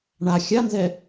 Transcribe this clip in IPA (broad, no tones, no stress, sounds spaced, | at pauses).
ɳ a xʲ a n z ɛ